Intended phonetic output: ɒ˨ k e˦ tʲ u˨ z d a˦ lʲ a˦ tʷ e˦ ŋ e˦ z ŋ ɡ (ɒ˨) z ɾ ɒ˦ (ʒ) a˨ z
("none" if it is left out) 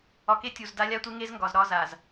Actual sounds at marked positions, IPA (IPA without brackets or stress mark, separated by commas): ɒ˨, z